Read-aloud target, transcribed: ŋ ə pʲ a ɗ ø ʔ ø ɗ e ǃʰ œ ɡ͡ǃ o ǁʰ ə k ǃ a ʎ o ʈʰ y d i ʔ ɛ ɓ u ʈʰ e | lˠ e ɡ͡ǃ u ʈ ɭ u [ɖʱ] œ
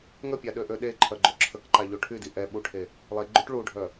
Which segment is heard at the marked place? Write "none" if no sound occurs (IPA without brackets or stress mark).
ɖʱ